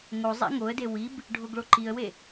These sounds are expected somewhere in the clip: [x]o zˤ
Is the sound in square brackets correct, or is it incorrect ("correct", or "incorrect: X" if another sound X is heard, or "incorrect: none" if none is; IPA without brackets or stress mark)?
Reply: incorrect: ŋ